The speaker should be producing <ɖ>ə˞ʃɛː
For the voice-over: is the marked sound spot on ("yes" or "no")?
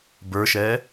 no